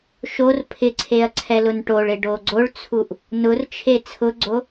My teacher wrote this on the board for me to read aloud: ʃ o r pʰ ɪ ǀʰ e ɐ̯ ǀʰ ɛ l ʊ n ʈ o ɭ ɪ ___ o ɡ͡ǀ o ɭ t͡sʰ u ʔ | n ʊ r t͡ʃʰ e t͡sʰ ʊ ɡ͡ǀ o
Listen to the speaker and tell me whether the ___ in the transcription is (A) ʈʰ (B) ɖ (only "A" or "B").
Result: B